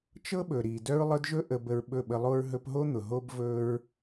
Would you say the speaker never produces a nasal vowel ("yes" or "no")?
yes